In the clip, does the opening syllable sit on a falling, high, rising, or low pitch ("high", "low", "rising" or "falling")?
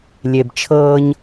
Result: low